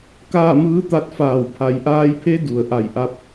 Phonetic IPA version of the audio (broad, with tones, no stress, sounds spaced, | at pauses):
k aː˥˨ m ɯː˧˥ t̪ a˧˥ t̚ f aː˧˩ w pʰ a˩˧ j ʔ aː˧ j pʰ e˧˥ d u˩ ə̯ ʔ a˧˩ j ʔ a˧ p̚